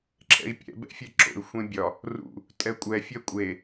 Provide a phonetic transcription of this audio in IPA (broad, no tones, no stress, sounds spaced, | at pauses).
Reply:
ǁʰ ɛ̰ i̯ pʲ ɛ̰ b ɛ̰ fʲ ɛ ǁ o̰ y̯ xʷ ẽ bʲ ɒ | r ṵ | tʼ ɛ kʷʼ ɛ fʲ ɛ kʷʼ e